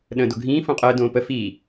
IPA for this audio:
ɗə̃ːdoɡʱĩː fõqʼəː dõːpə fiː

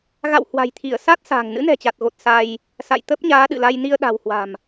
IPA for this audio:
ɣa̰˧˨w hwa̤˨˩jt̪ʰi˧˩ə̯ sa˦˥t̚sa̤ː˨˩ŋ nɨ̰˧˥nɛ̤˨˩t͡ɕa˨˩t̚ɣo˨˩t̚ sa˧j | sa̰˧˨j t̪ə˦˥p̚ɲaː˨˦ɗɨ̰˧˨la˧j ni˧ə̯ɗa̤˨˩whwa̤˨˩m

